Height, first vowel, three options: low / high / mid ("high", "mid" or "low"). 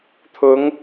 high